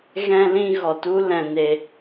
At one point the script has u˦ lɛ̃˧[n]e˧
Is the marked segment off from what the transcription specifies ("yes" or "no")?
no